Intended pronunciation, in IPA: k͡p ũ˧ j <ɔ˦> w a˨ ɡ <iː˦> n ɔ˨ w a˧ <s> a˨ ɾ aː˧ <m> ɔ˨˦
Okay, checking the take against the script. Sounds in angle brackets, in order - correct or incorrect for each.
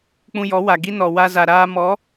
incorrect, incorrect, incorrect, correct

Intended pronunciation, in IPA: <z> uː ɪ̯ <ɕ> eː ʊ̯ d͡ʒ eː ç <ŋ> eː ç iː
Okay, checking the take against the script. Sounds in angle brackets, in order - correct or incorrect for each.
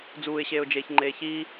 incorrect, correct, incorrect

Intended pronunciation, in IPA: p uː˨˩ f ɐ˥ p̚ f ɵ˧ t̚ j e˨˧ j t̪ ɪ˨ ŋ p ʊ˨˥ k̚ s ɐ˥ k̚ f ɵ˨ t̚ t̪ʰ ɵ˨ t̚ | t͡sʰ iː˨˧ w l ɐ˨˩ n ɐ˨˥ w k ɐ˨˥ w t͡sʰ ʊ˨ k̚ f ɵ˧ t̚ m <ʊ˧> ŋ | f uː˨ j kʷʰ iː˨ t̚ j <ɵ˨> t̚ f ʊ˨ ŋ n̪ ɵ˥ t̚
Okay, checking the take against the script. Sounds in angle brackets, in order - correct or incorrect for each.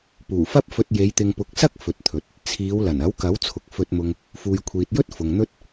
correct, incorrect

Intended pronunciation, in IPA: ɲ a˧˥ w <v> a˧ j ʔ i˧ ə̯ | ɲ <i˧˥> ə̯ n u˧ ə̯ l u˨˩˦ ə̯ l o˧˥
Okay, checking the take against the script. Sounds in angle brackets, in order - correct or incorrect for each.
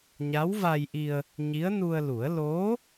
correct, correct

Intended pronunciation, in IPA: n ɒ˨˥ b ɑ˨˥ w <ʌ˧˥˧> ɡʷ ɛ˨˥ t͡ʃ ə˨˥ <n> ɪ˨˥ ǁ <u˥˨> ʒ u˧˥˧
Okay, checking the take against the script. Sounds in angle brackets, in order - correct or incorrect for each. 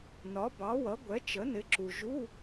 incorrect, correct, incorrect

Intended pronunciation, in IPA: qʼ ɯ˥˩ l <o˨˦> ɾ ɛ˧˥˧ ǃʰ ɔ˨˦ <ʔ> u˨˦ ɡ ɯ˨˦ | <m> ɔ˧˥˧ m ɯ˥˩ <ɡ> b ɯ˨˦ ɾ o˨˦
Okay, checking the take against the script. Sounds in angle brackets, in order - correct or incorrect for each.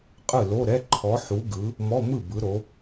incorrect, incorrect, correct, incorrect

